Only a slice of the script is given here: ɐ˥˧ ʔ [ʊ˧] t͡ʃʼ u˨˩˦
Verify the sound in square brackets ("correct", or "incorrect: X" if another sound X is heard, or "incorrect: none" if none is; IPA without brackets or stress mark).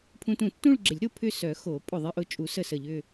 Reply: correct